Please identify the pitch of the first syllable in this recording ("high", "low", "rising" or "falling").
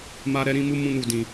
high